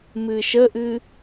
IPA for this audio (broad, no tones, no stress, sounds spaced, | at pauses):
m ɨ ʃ ə ʔ ɨ